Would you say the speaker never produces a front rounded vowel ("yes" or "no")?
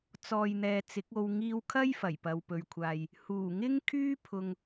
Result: no